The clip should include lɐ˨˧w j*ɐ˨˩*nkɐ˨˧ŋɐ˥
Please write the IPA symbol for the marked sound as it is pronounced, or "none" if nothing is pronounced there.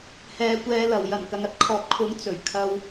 ɐ˨˩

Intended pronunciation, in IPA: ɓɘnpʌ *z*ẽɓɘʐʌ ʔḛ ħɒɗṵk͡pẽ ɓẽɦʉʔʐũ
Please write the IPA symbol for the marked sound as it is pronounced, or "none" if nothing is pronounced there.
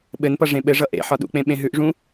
ʐ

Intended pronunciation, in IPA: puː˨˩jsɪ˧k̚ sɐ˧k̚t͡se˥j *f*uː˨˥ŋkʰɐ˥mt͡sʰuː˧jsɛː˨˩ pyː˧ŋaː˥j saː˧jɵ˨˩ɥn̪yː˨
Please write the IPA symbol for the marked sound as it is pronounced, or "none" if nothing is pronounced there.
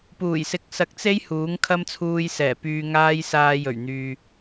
h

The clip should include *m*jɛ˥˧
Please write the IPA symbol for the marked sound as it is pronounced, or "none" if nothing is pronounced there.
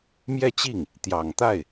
m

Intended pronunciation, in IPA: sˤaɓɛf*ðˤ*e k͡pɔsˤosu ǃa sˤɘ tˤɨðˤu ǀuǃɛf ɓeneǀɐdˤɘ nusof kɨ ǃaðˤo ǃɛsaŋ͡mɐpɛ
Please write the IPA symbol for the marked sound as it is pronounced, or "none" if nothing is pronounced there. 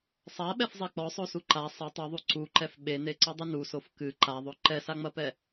zˤ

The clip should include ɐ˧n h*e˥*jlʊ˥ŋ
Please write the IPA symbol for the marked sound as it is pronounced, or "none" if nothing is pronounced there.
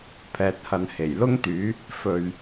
e˨˩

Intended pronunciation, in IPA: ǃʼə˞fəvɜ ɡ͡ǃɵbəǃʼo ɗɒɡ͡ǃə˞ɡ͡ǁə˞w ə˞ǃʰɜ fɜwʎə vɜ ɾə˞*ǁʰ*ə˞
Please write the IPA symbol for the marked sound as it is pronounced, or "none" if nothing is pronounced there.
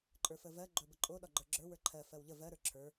ǁʰ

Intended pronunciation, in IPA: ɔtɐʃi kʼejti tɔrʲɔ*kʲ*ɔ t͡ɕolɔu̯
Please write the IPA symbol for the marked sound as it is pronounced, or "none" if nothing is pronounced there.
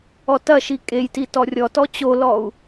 t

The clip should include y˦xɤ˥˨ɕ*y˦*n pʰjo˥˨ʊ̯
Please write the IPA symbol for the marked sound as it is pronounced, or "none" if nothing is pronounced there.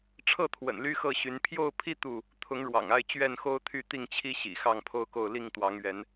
y˨˦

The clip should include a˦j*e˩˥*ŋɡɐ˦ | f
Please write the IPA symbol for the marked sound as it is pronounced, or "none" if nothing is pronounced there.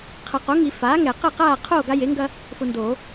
e˩˥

